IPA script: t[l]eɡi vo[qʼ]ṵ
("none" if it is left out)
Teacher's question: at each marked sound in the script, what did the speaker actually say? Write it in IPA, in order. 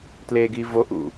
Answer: l, ʔ

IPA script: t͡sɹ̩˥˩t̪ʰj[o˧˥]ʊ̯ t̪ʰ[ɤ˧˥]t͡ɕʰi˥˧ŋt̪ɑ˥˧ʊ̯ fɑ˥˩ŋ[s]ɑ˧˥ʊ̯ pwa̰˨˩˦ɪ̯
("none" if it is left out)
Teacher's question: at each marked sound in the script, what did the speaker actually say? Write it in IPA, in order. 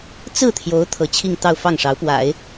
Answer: o˧˥, ɤ˧˥, ʂ

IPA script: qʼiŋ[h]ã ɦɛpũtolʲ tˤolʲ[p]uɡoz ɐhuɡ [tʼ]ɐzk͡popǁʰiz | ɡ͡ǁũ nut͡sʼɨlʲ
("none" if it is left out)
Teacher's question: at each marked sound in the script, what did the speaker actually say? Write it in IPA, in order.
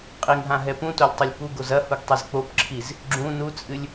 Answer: ɦ, p, tˤ

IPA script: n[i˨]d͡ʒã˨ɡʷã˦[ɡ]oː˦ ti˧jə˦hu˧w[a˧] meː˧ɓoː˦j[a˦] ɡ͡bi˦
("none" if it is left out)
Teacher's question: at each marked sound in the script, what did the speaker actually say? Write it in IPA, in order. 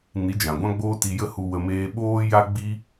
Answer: i˨˦, ɡ͡b, ə˧, a˦

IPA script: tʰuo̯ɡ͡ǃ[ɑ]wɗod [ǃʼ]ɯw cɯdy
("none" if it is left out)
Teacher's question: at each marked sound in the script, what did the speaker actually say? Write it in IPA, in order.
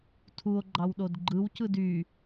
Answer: ɑ, ɡ͡ǃ

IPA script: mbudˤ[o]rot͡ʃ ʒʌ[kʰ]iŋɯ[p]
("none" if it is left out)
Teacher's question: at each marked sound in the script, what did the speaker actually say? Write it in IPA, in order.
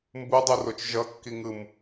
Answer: u, kː, m

